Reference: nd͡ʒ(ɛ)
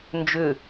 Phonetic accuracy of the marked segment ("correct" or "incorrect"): incorrect